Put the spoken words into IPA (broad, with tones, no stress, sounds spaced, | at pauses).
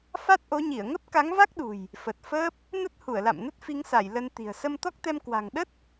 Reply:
f a˦˥ t̚ ʔ o˨˦ ɲ i˧˩ ə̯ ŋ ə˦˥ p̚ k a˨˦ ŋ v a˦˥ k̚ ɗ ṳ˨˩ j | f ə˨˩ t̚ f əː˦˥ p̚ | n ə˦˥ t̚ h u˧˩ ə̯ l a̰˧˨ m n ə˦˥ t̚ f i˨˦ ŋ s a˧˩ j l ə˧ n t̪ i̤˨˩ ə̯ s ə˧ m t̪ ɔ˦˥ k̚ t̪ ɛ˧ m k w a̤˨˩ ŋ ɗ ə˦˥ t̚